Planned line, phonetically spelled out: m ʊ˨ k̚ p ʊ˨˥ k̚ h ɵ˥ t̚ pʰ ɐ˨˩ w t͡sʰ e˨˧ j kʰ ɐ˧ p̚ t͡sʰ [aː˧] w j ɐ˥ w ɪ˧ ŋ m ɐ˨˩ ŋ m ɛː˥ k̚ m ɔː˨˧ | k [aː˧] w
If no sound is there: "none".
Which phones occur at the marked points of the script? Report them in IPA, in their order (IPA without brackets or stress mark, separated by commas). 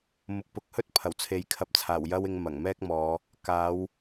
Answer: aː˨˩, aː˨˧